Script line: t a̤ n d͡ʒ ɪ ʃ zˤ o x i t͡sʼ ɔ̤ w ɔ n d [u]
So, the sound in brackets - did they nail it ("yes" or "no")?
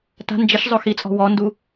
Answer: yes